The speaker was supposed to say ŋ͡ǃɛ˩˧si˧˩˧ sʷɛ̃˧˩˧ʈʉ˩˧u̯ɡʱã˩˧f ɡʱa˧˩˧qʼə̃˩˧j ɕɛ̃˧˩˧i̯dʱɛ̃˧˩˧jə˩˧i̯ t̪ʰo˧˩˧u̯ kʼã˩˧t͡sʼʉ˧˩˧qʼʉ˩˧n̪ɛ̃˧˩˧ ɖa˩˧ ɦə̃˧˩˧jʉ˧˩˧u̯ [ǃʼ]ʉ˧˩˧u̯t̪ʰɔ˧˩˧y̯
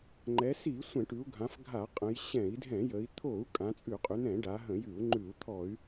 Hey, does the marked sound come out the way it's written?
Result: no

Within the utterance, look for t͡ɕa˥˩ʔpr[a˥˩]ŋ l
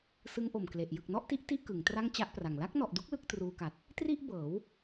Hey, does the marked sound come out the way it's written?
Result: no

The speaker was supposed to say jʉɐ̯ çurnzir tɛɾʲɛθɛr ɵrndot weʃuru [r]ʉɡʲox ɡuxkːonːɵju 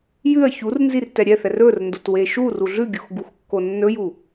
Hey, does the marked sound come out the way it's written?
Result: no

